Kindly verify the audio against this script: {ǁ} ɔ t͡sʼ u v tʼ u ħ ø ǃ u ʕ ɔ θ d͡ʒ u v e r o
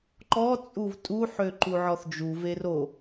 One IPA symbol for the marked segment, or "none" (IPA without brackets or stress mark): ǃ